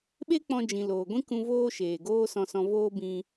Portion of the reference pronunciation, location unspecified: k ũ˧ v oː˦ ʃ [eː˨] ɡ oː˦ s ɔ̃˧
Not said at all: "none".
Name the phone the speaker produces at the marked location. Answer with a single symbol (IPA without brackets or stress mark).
eː˨